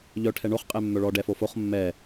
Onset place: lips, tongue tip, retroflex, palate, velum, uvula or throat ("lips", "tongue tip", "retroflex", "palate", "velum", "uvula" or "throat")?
palate